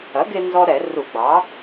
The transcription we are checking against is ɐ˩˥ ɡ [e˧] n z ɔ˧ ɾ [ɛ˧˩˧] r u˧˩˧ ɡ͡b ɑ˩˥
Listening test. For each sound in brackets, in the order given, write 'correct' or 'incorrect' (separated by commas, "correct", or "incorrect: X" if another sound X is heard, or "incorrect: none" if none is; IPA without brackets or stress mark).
correct, correct